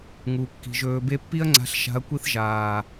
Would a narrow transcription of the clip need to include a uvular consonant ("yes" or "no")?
no